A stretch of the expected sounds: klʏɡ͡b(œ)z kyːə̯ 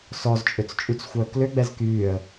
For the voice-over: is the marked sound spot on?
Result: no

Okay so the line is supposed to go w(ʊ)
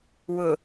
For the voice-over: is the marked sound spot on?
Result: yes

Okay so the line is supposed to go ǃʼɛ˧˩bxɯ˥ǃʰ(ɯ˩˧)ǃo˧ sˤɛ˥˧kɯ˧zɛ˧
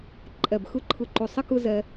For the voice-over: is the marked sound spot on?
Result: no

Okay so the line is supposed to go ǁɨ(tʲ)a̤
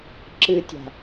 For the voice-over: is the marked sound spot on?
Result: yes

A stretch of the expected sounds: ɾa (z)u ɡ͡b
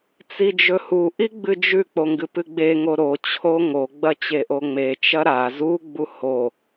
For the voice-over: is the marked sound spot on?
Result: yes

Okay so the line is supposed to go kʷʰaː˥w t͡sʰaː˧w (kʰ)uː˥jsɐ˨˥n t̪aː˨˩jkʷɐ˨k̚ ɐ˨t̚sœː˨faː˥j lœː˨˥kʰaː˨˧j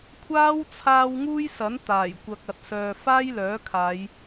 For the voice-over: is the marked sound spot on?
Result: no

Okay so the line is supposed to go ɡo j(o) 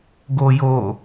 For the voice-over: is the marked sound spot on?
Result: yes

